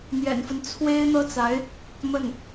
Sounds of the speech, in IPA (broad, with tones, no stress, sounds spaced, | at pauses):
n̪ j ɛ̰˨˩ n f ə˦ n t͡sʰ w e˥ ɪ̯ n̪ ɤ˥ t͡s a˧˥ ɪ̯ | m ə˥˩ n